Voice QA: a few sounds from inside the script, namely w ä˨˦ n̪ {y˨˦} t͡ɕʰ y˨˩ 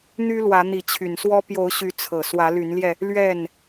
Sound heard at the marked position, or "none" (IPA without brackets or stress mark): i˨˦